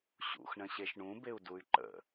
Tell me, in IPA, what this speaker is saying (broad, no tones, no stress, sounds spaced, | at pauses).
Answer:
ɕ ṵ x ɳ ə̃ ɕ e ʃ ɳ ũ b e u̯ d u y̯ ǃ ə̰